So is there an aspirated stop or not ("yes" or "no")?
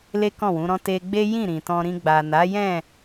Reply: no